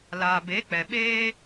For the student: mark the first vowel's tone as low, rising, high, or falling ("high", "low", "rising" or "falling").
low